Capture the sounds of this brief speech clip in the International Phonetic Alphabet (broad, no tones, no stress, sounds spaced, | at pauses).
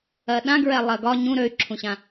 ɜ ɗ ã ɡ ɹ ɛ lˠ ɜ ɡ ɒ ɲ ũ ɾ ø y̯ ǁʰ ũ ɕ ã